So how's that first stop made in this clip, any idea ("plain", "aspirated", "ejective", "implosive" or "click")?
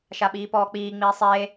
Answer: implosive